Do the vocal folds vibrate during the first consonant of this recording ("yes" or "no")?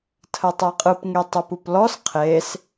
no